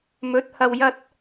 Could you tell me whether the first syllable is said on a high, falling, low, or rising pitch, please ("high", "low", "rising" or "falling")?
rising